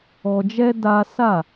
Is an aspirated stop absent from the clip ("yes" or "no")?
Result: yes